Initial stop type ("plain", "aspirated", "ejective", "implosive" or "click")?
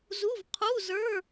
aspirated